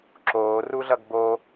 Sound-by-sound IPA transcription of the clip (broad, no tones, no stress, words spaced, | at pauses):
ǁoːruɮʌɡ bo